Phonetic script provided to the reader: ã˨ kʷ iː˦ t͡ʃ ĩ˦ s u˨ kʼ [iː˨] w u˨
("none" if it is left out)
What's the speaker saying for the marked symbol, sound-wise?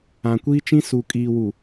iː˨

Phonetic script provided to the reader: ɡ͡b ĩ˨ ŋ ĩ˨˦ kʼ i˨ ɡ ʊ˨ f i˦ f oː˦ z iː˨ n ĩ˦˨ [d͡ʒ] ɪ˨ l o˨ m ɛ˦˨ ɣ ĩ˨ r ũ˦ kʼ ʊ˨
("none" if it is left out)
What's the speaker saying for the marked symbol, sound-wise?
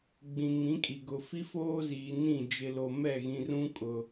d͡ʒ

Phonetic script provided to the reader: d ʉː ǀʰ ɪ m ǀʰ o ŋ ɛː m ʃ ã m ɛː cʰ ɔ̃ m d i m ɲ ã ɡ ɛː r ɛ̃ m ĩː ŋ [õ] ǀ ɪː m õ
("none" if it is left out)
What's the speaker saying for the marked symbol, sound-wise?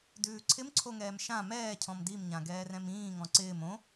ɔ̃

